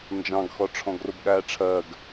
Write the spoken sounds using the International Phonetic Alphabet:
n d͡ʒ ɑ̃ ɡ x ɔ ʈ͡ʂʰ ɔ̃ ɡ r ʊ b ɠ æː ʈ͡ʂʰ ɜ ɡ

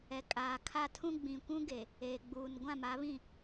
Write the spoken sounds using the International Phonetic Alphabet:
ɛ˨ kʼ aː˨ kʰ a˦ tʰ ũ˦ ɡ͡b ĩ˨ kʷ ũ˦ ɡ e˨ | eː˨ ɡ͡b uː˨ n ɡʷ ã˦˨ m a˨˦ β ĩ˦˨

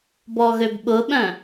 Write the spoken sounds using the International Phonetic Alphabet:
b ɔ ɣ ø b ɓ ʊ ɓ œ̃

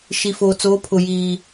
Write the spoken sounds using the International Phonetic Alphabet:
ʃ i˨ f oː˨ t͡s oː˨˦ pʰ ʊ˨ j iː˨

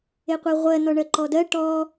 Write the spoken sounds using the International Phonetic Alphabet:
e qʷ e ʁʷ ɜ n ɔ ɳ ɜ ǃ ɔ d ɜ ʈ ɔ

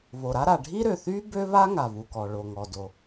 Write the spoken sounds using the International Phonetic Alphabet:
β o˩ ɾ a˥ ɾ a˩ ɖʱ i˥ ɾ ø˩ θ y˥ b ø˥ β a˥ ŋ a˩ β u˩ k ɔ˩ ɭ o˩ ŋ ɔ˩ d o˩

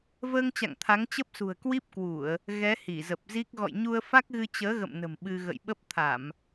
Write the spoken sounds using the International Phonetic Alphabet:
v əː˧ ŋ t͡ɕ a̰˧˨ ŋ t̪ʰ a˨˦ ŋ t͡ɕ ə˦˥ p̚ s ṳ˨˩ ə̯ k w i˦˥ p̚ k w u˧˩˨ ə̯ | ɣ ɛ˨˦ h i˧˩ z ə˨˩ p̚ z i˦˥ k̚ ɣ ɔ̰˧˨ j ɲ u˧ ə̯ f a˦˥ k̚ ɣ ɨ˧ t͡ɕ əː˨˦ ɣ ə̰˧˨ m n ə̤˨˩ m ɓ ɨ˧ ɣ ə̰˧˨ j ɓ ə˦˥ p̚ t̪ʰ a˧˩˨ m

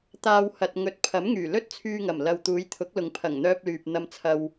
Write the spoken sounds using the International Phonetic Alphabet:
t̪ aː˨ w h ɐ˨ t̚ ŋ ɵ˨˥ t̚ pʰ ɐ˨˥ m ŋ yː˨˩ l ɵ˥ t̚ t͡sʰ yː˧ ŋ ɐ˨˩ m l ɐ˨ w t̪ uː˨˧ j t̪ʰ ʊ˨˥ k̚ l ʊ˨ ŋ pʰ ɐ˨˩ ŋ n̪ œː˧ p̚ l yː˨ p̚ n̪ ɐ˧ m t͡sʰ ɐ˧ w

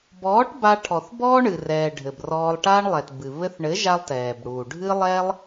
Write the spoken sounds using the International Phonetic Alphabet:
b ɔː˨˦ ʈ b a˧ ʈʰ ɔ˨ θ b ɔː˦ ɳ ɨ˨ r ɛː˨ ɖʱ ɘ˨ b r ɔː˧ lˠ ʈ aː˦ ɳ lˠ ɛ˨ t b ɨ˨ β ɘ˧ θ ɳ ɘ˨˦ ʒ a˧ lˠ t ɛː˨ b ɽ uː˨ ɖʱ ɨ˦ lˠ ɛ˦ lˠ

